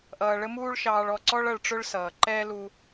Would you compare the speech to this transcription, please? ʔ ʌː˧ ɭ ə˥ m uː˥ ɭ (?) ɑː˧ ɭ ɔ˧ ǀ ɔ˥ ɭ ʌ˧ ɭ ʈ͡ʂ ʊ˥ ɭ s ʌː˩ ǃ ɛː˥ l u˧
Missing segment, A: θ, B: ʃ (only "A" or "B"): B